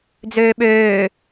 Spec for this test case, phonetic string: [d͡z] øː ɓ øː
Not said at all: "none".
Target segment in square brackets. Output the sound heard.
d͡z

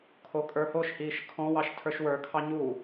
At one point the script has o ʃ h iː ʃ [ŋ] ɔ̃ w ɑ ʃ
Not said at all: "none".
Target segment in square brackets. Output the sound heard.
kʰ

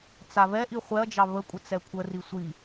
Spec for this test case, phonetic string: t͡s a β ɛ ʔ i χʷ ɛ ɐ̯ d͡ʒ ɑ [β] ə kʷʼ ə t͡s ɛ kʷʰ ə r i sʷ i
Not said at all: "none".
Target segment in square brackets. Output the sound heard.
β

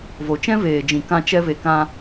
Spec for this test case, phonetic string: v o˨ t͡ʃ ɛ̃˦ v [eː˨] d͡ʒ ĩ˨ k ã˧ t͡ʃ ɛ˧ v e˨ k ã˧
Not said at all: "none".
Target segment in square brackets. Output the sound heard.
eː˨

